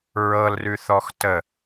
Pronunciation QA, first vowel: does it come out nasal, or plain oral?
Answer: oral